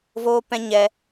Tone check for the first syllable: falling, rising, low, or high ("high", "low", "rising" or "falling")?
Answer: high